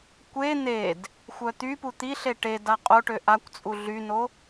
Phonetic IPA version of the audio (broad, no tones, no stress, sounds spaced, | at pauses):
kʷ e n̪ e d | xʷ œ t̪ y p u t̪ i ɬ e ʈ e d a qʼ o ʈ ø ʔ a kʷ t͡sʼ u ɮ y n o